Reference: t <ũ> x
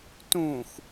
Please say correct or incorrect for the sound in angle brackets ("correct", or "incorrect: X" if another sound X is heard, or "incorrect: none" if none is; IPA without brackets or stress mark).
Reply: correct